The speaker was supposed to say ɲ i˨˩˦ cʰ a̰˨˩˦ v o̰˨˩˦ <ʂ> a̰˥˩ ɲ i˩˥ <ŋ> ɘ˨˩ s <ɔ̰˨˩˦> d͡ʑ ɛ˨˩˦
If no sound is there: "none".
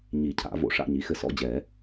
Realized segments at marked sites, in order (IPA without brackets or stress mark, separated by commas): ʂ, x, ɔ̰˥˩